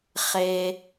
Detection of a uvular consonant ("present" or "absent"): present